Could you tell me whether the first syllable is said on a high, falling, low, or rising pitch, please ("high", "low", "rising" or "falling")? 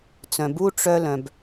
low